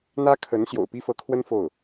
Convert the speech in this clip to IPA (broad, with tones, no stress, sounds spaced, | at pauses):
n̪ ä˥ kʰ ə˧˥ n ɕ j o̰˨˩ ʊ̯ p i˥ f ɤ˧˥ kʰ w ə˥ n f o˥˩ ʊ̯